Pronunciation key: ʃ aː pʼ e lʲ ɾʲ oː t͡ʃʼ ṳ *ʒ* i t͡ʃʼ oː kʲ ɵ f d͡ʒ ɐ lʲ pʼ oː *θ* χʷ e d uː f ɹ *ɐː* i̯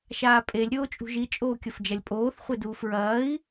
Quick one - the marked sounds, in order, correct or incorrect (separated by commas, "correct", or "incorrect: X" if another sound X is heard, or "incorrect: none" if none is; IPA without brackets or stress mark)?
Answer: correct, correct, correct